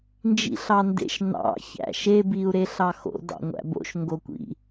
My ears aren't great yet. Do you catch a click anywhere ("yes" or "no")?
no